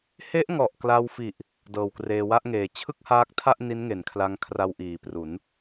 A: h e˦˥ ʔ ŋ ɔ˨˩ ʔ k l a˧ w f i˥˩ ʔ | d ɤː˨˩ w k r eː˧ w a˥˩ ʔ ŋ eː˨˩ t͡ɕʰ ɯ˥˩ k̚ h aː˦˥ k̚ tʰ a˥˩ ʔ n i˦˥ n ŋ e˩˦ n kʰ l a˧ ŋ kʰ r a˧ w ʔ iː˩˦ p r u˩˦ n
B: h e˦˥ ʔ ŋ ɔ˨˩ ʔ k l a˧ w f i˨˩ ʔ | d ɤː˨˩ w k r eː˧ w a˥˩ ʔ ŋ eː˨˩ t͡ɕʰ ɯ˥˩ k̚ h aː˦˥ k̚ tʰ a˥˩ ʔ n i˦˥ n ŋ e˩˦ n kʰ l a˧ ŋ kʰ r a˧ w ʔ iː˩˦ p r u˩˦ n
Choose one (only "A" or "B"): B